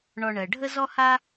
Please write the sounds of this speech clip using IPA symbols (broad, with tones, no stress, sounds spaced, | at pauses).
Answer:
ɳ ɔ˨ ɳ ɜ˩ ɖʱ ə˦ z ɔ˦ h a˦